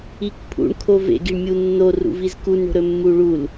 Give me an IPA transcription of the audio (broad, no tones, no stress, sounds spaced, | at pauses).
i k pʰ ṵ ɳ kʰ o v ḛ ɡ i ɳ mʲ u nː o r ṵ v i z k u n ɳ o̤ ɾ ɵ mː u ɭ u l